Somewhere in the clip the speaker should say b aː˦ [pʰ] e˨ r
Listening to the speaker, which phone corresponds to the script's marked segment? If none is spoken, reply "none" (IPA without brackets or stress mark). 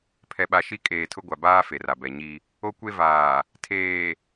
f